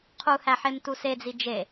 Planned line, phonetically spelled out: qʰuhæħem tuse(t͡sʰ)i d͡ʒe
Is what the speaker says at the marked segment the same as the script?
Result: no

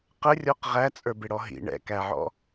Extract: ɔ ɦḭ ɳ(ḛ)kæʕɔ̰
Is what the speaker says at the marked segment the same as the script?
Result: no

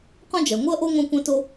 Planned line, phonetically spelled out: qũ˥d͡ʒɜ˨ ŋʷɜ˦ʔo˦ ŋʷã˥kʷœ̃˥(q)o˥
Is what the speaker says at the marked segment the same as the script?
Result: no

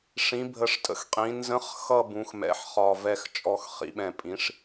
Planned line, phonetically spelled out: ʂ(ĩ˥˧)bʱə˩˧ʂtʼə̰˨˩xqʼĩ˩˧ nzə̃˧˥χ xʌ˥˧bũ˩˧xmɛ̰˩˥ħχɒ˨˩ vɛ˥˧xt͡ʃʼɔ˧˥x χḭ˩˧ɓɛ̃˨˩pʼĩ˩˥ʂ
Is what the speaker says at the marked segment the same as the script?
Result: no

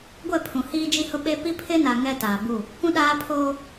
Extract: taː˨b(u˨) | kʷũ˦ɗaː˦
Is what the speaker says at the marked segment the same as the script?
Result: no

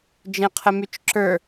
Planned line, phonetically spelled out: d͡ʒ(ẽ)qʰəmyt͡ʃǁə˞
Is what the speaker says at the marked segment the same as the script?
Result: yes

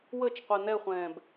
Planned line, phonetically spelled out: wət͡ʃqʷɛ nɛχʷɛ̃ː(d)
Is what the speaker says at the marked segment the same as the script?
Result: no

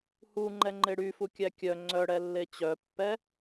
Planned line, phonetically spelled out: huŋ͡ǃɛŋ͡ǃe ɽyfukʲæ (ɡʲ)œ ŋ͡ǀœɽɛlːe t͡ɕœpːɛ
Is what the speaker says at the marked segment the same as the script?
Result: no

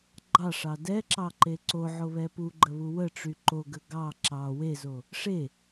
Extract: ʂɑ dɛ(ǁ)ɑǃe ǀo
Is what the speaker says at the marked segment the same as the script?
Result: yes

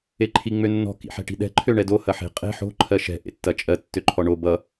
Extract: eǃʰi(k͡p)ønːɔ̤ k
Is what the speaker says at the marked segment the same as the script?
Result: no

